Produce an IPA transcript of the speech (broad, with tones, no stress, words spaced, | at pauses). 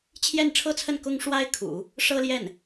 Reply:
t͡ɕʰjɛ˥˩nʈ͡ʂʰɤ˥t͡sʰə˥˩n kʊ˥ŋʂwa˥ɪ̯kʰṵ˨˩˦ | ʂɤ˥ljɛ˥˩n